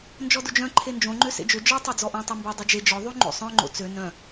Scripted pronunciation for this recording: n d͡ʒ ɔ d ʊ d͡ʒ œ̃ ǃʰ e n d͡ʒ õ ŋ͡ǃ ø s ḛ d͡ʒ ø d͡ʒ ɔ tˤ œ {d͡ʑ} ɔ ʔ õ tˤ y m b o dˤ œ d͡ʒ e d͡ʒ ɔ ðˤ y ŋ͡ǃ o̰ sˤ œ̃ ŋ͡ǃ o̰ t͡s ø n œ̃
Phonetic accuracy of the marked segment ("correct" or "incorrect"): incorrect